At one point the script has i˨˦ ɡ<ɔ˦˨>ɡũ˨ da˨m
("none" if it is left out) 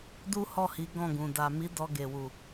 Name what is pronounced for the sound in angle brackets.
ɔ̃˦˨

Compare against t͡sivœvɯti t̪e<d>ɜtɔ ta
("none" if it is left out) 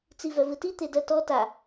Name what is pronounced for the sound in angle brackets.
d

